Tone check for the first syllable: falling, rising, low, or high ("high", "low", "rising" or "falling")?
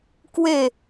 falling